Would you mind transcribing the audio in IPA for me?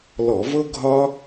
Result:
lɔ˧˩˧vɤ˥ ɡʱɒ˥

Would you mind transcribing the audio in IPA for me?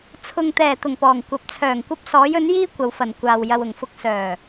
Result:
t͡sʰʊ˨ŋt̪ɛː˨˩ t̪ʊ˨˩ŋpɔː˨˩ŋ kʷɐ˨p̚t͡sʰœː˨˩ŋ kʷɐ˧p̚ sɔː˨˥jɵ˨˥n jiː˥kʷɐ˨wfɐ˨˩n kʷaː˨w jɐ˨wʊ˨˩ŋfʊ˧k̚ sœː˨˩

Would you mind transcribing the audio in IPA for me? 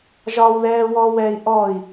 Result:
ʒɒwðɛː wɔwɛːi̯ ʔɔi̯

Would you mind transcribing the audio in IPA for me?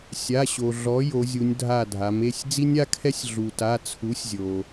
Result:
sʲa˩˧˩ɕo˩ ɮɔ˩˥ jo˩˧zʲu˩˧nʲdʱa˧˩ dʱa˩˧me˩˧˩sʲ d͡zi˦nʲa˦kʰɛ˦sʲ ɮu˩ta˩˧˩ t͡sʰu˩˥sʲzʲo˩

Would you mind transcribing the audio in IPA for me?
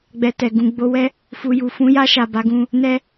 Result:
ɡ͡bɛ˧tɛ˨ ɡũ˨ɡ͡bo˨˦wɛ˦ | fu˨ju˨fũ˨˦ja˧ ʃa˨ba˨˦ɡũ˧ | nɛ˦

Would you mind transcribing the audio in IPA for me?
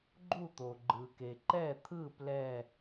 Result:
ɡ͡ǃu˥˩t̪o˩ ɡ͡ǃɯ˩ke˩ ǃɛ˥˩t̪ʰɯ˥˩ plɛ˧˩

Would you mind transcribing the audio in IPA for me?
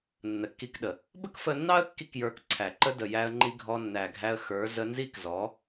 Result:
nːə˨kːi˧kɗə˨ | bə˦kfə˧nːɑ˦ə̯ kːi˦kjə˞˧kǀʰæ˨ǃə˦ də˨jæ˧ə̯ŋ͡ǃi˧ ɡʱɔ˧nːæ˨ɡʱæ˧ə̯xə˞˨˦ zə˧nzi˦kzɔ˨˦

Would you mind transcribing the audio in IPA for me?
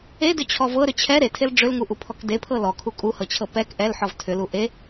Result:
edʏt͡ɕʰɔ vɤɾʏ t͡ɕʰɛ ɾetʰel ɖ͡ʐʏlŋuʔupʰɔk depʰɤ lɔkʰu kʼuhɤt͡ɕʰɤ pɛk ʔɛlħɔv tʰʏlu ʔe

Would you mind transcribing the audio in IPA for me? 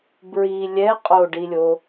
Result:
bɹi lʲɛ qʼoɖilʲo

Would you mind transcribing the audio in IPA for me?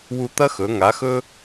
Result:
wu˧t̪ɐ˥xɵ˩˧ ŋa˩˧xɵ˧

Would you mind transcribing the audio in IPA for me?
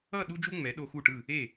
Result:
ʌ˥˧ ɗu˥d͡ʒu˥ ŋ͡mɛ˩˧ɗo˧xu˧˩ʈɯ˧˩ | e˧˩

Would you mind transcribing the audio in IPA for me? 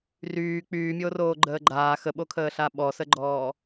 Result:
ryː k͡pyːmʲoːroː ɡ͡ǃəːɡ͡ǃaː xəɓokʰəːɬa ɓɔsəɡ͡ǃɔː

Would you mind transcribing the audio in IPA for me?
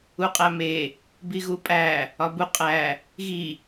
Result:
uqʼæme | biɣupʼæ | ɒbu qʼæ | ɣi

